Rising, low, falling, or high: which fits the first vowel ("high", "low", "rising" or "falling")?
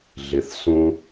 low